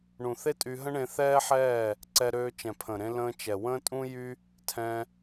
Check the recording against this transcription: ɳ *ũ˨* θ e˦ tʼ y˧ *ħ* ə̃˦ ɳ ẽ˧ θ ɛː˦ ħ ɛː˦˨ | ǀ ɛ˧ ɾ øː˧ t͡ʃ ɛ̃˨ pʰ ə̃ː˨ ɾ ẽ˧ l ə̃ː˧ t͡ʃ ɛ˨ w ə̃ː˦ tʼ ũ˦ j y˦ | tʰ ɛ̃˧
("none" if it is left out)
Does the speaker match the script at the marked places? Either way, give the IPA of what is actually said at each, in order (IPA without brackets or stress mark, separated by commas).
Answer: ũ˨, ɦ